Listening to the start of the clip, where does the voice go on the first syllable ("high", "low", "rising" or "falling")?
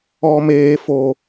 high